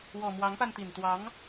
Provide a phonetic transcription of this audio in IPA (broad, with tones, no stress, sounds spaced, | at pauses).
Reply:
w ɔ˨˩ m w ɑ˧˥ ŋ p a˧ n t̪ i˨˩ n t̪ w ɑ˧˥ ŋ